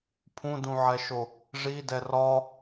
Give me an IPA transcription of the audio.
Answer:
pʰ ũ d ũ ʕ ɛ ʃ o | ʐ i d ɛ r ɒ

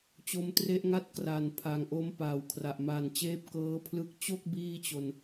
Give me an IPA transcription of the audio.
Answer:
t͡ɕ o˧ m t r e˦˥ ʔ ŋ a˥˩ t̚ k r a˨˩ n pʰ a˨˩ ŋ ʔ o˦˥ m p aː˨˩ w kʰ r a˨˩ ʔ m a˨˩ n t͡ɕ eː˦˥ p̚ k ɤː˦˥ pʰ l ɯ˦˥ k̚ t͡ɕ o˥˩ k̚ b iː˥˩ t͡ɕ o˧ n

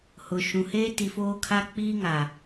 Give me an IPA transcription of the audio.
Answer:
h ʊ˨ ʃ ũ˨ h eː˦ t i˨ f oː˦ kʰ a˦ k͡p iː˦ ŋ a˨

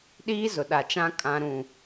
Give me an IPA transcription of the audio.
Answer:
ɗ iː˦ z ʊ˨ ɗ a˨ t͡ʃ ã˦ kʼ ã˦ ɾ ũ˦˨

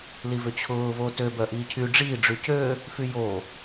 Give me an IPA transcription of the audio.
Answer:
l i v ʏ t͡ɕʰ ʊː v o t ø b œ ʔ iː cʰ y ɖ͡ʐ iː ɖ͡ʐ y c ø | f y j o

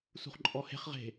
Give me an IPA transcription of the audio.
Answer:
s ṳ χ ǃʼ ɔ h e̤ χ ʁ e̤

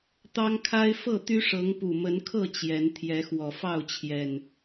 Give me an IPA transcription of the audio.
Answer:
t̪ ɑ˦ ŋ kʰ a˦ ɪ̯ f ɤ˥˨ t̪ y˦ ʂ ɤ˨˦ ŋ p u˨˩ m ə˨˦ n kʰ ɤ˥˨ t͡ɕ j ɛ˨˦ n t̪ʰ j ɛ˨˦ x w ɔ˨˩ f ɑ˥˨ ʊ̯ t͡ɕʰ j ɛ˨˩ n

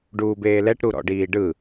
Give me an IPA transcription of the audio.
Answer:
ɖ uː b eː l ɛ ʈ ɾ u ɾ ɔ̰ ɖ iː ɖ ɯ

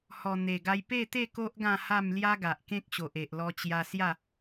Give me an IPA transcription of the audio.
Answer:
h ɔ˨˩ n̪ e˨˩ ɡ a˧ j p e˥˧ t̪ e˥˧ k o˦ ʔ ɡ ã˥˧ h a˥˧ m l j a˦ ɡ a˨ ʔ k ẽ˦ k̚ ɕ o˨ ʔ e˨ ʔ l ɔ˧ t͡ɕ j a˧ s j a˥˧

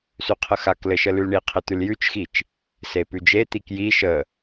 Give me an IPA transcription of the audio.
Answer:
s ʉ qʰ ə x a k l ɘ ʃ ə l ʉ l ɳ i qʰ e t̪ ʉ l j ʉ t͡ʃ x i t͡ʃ | s e p ʉ d͡ʒ e t̪ i k j i ʃ ə

